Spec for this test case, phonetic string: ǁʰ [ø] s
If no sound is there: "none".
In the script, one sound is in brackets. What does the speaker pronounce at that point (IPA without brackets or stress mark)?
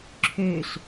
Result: ø